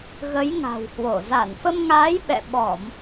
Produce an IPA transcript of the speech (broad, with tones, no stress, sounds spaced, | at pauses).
ɣ ə˨˦ j ŋ a̤˨˩ w h w o˧˩ z a˧˩ n f ə˧ m ŋ aː˨˦ j ɓ ɛ̰˧˨ ɓ ɔ˧˩˨ m